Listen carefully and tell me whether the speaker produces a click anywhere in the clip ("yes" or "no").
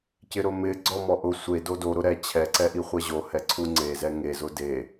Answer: yes